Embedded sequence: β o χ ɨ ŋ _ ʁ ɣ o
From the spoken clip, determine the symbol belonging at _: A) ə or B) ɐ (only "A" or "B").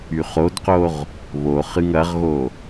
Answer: B